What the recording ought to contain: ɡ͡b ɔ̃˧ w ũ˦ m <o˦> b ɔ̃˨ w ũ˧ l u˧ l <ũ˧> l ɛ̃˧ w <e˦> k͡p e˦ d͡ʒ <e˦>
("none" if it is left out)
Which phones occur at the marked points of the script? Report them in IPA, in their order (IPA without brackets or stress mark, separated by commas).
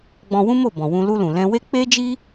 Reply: o˦˨, ũ˨, e˦, i˦